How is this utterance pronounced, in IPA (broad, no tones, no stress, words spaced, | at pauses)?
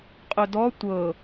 qʼɵdɔ tʷɤ